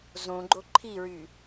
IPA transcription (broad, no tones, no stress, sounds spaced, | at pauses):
z õ ɡ͡ǃ o ǃʰ i ɹ y